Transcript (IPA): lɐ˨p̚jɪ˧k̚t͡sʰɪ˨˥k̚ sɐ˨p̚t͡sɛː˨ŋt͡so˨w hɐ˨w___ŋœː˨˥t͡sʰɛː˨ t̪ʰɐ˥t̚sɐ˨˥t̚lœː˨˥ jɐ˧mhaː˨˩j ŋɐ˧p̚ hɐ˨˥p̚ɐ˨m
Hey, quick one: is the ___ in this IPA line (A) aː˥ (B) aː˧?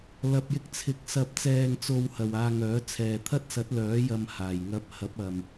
B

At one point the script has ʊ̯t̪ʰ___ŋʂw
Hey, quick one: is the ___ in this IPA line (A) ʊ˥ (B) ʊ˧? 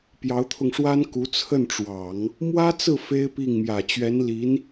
B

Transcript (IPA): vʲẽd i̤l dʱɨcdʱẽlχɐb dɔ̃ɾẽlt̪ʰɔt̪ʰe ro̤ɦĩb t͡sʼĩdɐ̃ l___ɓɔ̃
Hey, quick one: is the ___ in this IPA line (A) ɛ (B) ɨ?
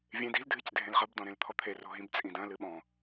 B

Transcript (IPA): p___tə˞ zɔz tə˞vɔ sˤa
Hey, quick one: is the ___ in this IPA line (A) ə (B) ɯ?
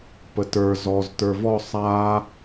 A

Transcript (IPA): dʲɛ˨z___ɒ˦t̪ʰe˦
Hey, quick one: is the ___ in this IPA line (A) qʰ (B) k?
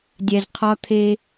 A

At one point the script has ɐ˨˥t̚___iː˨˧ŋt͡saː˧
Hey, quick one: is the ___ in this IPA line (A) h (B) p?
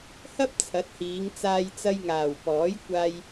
A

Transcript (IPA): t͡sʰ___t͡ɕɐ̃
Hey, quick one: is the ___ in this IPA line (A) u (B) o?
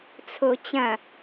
B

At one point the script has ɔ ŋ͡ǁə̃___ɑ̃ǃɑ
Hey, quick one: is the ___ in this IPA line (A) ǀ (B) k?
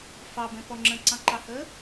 A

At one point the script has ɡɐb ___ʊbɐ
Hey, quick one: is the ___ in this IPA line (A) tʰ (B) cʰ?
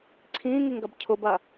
B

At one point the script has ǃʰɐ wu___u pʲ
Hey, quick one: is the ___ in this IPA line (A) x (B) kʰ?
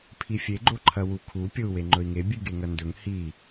B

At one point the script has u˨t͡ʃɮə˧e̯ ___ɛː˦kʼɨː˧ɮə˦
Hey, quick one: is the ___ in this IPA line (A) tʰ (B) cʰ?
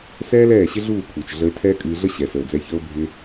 A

